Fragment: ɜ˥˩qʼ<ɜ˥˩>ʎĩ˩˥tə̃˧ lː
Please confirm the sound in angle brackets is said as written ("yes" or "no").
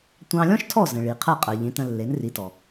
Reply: no